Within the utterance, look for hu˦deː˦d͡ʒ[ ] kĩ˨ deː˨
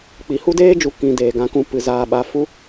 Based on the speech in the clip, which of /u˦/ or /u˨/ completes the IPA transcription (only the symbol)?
u˨